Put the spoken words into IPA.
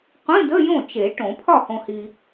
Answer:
qʷĩ˧˥˧də˧˥˧ jõ˥˩t͡ʃe˨˩˦ ʈõ˨˩˦ pʰɒ˥˩hõ˨hi˨

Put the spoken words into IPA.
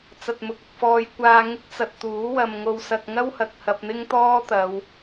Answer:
t͡sɐ˨t̚mʊ˨k̚ɐ˨k̚fɔː˧j kʷaː˧ŋɪ˥k̚t͡sɐ˨t̚ t̪uː˨˥wɐ˨m ŋo˨wsɐ˨k̚ ŋɐ˥whɐ˨k̚ hɐ˧p̚ n̪ɪ˥ŋt̪ɔː˥t̪ɐ˨˧w

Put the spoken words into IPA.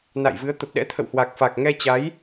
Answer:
na̰˧˨jvɨ˨˦ə̯ t̪ə˨˩p̚ɗɛ̰˧˥t̪ʰə̰˧˨w hwa˨˩k̚fa˨˩k̚ŋɛ˧ t͡ɕa˨˦j

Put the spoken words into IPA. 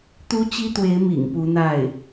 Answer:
t̪u˥t͡ɕi˥t̪we˧˥ɪ̯ mḭ˨˩ŋpu˧˥n̪a˥˩ɪ̯

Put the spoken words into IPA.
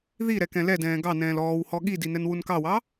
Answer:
ði ɾɛkɛ̃lɛdɛ̃ː ɡɑnɛ̃ːl ɔːwhɔ ɠidi nɛnwunkɑwɑ

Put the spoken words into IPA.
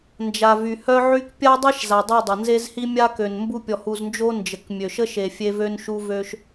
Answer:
nd͡ʒa˨vy˨hœ˦ʕy˦k pʲa˦dˤe˦ʃ za˨dˤy˦˨ dˤə˨nze˦zhi˦ mʲa˦kø˨n mbu˦pʲɔ˨hu˨znd͡ʒo˦ nd͡ʒə˨kmʲø˨ʃə˦ʃe˨ fʲe˦vø˦nʃu˦ vø˦ʃ

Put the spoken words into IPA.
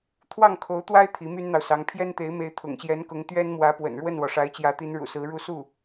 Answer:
t̪ʰwɑ˥˩ŋkʰo˧˥ʊ̯t̪wa˥ɪ̯ t̪ʰi˧˥my˥nn̪ɑ˨ʊ̯sɑ˧˥ŋ pʰjɛ˥nt̪e˧˥ɪ̯me˧˥ɪ̯ t̪ʰʊ̰˨˩ŋɕjɛ˧˥nkʊ˧˥ŋ t̪ɥɛ˥nmwä˧˥pwə̰˨˩n ɻwə˥˩nwɔ˩ ʂa˧˥ɪ̯t͡ɕjä˧˥t̪i˧˥n ɻṵ˨˩sɹ̩˧˥ ɻu˥˧ su˥˩

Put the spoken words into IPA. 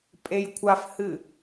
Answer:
pʼejkʷʰafhɨ

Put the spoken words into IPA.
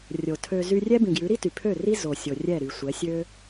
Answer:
rʲo˨tʰø˧ zy˧rʲɛ˦bĩ˨ɡjʉ˨˦ ɾi˦ty˨pʰø˦˨ri˦ zo˨sʲo˨ rʲɛ˦˨ɾy˨sʷɛ˨˦ sʲø˦

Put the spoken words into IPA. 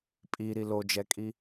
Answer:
pʼiɾi lod͡ʒɛkʼi

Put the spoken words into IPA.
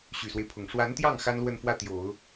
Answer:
ɕy˨˩swe˦ɪ̯pʰʊ˨˩ŋ ʂwa˧˥nt̪jɑ˥˩ŋ xa˥nlwə˥˧nfwä˥˩t̪jo˨˩˦ʊ̯

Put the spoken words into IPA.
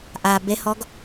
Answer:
ʔa behɔɡ

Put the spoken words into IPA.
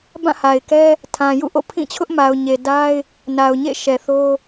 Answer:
bã˦˨ha˨ɪ̯kɛ˦ | tʰã˨jṵ˦˨ʔo̰˦˨ pʰĩ˦˨t͡ɕʰʊ˦ʔma˨ʊ̯ ɲe˨da˦ɪ̯ | na˨ʊ̯ɲḛ˦˨ʃɛ˨ θo˦

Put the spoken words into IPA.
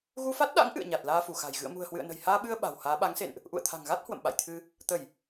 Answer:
ɣu˧fa˦˥t̚ɗa̰˧˥ŋ ʔɨ̰˧˨ə̯ɲa˨˩t̚ laː˧fu˧˩xa̤˨˩j ɣɨ̰˧˨ə̯mṳ˨˩ə̯hwɨ̰˧˨ə̯nə̤˨˩j haː˧ɓɨ˧ə̯ ɓa̤˨˩whaː˨˦ ɓa˨˦ŋsḛ˧˨nʔ | ʔṵ˧˨ə̯t̪ʰa̤˨˩ŋɣa˦˥t̚ hwə̰˧˨mɓa̰˧˨jt̪ʰɨ˧ | t̪ə˧˩˨j

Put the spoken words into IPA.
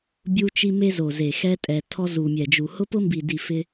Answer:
bʲu˦t͡ʃi˦me˦ zo˨ze˨ xɛ˧tʼɛ˨tʰɔ˧ zu˨mʲɛ˨d͡ʒu˨ hʊ˧pʊ˧mbi˨di˨ fɪ˦

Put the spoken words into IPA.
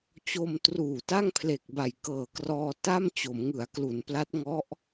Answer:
t͡ɕo˧m truː˨˩ta˥˩ŋpʰle˨˩k̚ba˨˩j kɤː˨˩krɔː˧ta˥˩m t͡ɕo˩˦mŋɯ˩˦a̯klu˩˦npla˦˥t̚ ŋɔ˦˥ʔ

